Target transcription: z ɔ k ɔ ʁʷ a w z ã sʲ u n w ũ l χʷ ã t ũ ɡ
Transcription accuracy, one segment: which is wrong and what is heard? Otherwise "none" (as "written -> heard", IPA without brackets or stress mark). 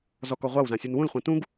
none